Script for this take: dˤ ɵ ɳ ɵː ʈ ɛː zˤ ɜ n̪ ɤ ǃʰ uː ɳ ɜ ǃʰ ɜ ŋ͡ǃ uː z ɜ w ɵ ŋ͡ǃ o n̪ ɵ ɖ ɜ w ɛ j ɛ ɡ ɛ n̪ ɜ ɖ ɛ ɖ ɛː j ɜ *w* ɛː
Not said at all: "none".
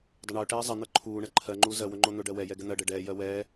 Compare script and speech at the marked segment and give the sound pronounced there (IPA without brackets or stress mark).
w